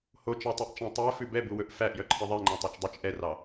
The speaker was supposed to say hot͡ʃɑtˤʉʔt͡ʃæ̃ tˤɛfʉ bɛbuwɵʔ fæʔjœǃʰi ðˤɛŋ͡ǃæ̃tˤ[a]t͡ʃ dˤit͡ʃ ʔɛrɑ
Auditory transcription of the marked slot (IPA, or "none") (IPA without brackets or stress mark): ɑ